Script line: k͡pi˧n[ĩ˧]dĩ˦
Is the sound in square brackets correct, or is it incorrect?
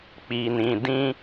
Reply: correct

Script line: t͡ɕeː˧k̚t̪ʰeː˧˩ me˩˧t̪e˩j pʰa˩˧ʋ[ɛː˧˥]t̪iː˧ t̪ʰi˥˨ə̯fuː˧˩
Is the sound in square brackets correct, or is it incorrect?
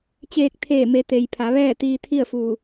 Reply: incorrect: ɛː˥˨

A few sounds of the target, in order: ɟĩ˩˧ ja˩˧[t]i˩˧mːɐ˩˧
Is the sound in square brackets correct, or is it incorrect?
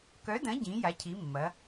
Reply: incorrect: cʰ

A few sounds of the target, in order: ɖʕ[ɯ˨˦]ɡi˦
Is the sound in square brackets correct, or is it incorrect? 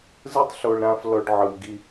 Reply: incorrect: ɯ˧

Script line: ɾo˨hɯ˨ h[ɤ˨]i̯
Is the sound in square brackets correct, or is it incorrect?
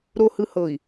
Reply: correct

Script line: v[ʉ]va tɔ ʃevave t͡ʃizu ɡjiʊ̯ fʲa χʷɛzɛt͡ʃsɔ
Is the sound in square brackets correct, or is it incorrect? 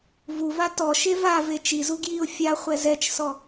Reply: incorrect: u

